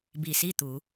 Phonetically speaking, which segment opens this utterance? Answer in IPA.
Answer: b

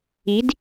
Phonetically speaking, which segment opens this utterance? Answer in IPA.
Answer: i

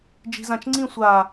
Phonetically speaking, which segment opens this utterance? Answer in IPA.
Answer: d͡ʒ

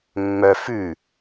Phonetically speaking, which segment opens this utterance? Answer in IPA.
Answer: mː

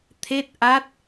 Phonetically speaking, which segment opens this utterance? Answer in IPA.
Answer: t̪ʰ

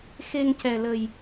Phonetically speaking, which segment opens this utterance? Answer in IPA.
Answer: x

